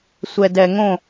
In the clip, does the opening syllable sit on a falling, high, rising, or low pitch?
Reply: low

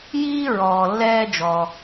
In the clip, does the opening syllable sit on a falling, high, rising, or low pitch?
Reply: high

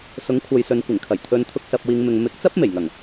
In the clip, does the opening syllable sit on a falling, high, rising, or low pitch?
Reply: rising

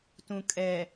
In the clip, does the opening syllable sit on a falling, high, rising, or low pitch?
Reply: low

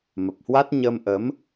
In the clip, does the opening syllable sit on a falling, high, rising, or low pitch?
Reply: low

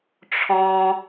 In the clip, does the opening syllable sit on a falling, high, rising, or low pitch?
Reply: low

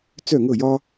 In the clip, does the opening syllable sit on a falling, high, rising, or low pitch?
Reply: falling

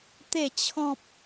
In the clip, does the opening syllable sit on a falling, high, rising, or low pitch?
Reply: low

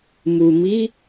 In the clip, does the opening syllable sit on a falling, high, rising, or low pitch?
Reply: low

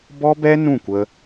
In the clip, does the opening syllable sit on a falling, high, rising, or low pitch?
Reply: high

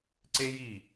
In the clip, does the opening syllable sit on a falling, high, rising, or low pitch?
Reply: high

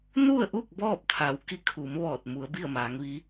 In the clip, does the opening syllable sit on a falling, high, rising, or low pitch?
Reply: falling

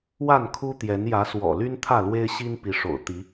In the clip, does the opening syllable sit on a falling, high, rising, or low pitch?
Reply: falling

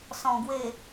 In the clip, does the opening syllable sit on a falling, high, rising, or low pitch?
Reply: low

